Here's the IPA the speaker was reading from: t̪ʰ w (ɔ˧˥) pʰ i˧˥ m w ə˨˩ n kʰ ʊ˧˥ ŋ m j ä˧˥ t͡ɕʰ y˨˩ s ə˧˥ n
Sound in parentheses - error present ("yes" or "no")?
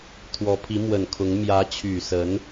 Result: no